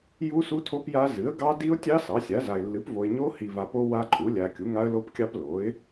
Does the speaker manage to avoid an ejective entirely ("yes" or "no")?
no